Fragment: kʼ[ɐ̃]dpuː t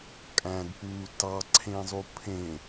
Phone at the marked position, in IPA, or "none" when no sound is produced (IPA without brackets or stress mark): æ̃